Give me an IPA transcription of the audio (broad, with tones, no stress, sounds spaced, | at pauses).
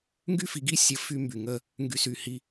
ŋ ɡ y˦ f i˨˦ ɡ i˦ sʲ ə˦˨ f y˦ m b y˨ ŋ ə˦ | ŋ ɡ y˦ s y˦˨ h i˦